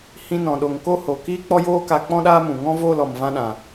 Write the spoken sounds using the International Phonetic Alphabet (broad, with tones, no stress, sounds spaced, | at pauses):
h ĩ˧ n ɔ̃˨ ɗ o˨ ŋ k o˦ h o˨ k iː˦ k͡p ɔ˦ j oː˦ k a˧ k͡p ɔ̃˦ ɗ aː˦ m ũ˨ ŋ ɔ̃˦ v oː˦˨ l ɔ˨ m v ã˧ ɗ ã˨